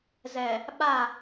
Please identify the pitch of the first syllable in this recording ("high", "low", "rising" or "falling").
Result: low